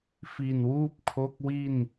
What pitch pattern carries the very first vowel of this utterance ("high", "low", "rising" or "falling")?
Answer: low